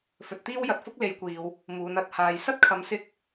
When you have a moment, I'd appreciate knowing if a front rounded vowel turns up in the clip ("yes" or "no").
no